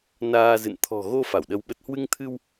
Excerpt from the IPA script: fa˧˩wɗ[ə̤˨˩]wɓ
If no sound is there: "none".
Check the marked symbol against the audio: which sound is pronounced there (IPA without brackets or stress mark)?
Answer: ə˧